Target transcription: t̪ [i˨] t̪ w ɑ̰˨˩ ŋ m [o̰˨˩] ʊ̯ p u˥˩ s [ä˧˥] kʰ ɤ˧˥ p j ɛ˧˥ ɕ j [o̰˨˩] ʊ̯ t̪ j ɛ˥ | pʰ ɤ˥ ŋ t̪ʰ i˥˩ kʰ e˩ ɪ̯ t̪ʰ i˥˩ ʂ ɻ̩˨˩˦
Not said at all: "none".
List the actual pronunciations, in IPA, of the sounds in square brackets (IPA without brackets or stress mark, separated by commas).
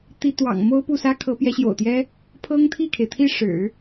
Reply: i˥, o˥, ä˥, o̰˨˩